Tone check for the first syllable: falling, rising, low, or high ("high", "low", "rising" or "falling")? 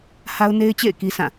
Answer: high